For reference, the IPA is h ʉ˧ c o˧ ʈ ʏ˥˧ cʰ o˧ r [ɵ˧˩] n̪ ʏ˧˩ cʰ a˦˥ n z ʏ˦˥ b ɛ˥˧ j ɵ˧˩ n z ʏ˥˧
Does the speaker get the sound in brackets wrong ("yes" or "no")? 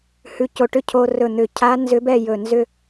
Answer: no